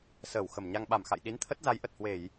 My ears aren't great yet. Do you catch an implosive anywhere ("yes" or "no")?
yes